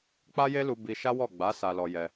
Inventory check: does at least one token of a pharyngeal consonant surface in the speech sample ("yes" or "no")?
no